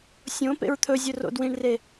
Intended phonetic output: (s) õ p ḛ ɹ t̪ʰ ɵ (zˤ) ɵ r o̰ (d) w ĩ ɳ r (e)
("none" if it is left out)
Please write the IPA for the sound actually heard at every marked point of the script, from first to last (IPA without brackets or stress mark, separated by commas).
sʲ, zʲ, d, e